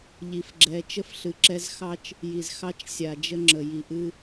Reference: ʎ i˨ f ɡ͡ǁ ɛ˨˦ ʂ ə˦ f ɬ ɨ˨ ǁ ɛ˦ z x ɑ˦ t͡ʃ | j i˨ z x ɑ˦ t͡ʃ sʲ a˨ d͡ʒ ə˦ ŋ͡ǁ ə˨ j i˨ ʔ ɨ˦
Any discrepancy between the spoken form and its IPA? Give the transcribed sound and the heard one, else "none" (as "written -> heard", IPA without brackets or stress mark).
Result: ʂ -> t͡ʃ